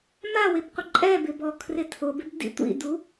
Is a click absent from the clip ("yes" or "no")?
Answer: no